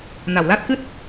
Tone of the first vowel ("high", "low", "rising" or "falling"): low